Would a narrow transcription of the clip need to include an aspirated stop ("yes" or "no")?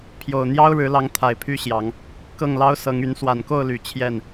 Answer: yes